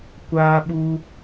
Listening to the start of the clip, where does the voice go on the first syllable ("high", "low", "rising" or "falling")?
high